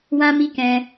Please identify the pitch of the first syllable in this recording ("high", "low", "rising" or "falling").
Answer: high